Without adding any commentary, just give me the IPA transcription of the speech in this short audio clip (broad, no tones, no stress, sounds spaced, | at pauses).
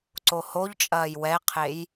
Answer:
ǀ o h o ʎ t͡ʃʼ ɐː j w ɛ qʰ e j